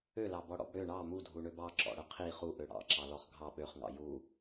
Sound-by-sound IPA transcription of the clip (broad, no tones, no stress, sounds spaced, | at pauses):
ø l ɑ b ɔ ɽ ɔ̰ b ɽ ø ɳ ɑ m u dʱ u ɳ ø b ɑ ǁ ɔ̰ ɽ ɵ qʰ i χ u ʔ ø ɽ ɑ̰ ǁ ɑ l ɔ χ ɡʱ ɑ ɓ ø χ ŋ ɑ̰ j u